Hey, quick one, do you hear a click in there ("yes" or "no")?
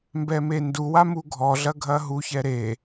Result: no